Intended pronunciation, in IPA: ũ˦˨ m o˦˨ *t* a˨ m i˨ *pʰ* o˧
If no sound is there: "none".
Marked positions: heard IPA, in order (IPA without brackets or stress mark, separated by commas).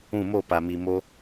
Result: p, m